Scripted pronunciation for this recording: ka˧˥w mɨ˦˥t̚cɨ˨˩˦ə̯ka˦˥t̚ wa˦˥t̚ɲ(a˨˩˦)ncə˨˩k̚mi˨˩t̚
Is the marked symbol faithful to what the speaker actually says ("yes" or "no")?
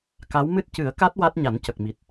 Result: yes